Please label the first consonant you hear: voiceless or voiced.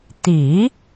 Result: voiceless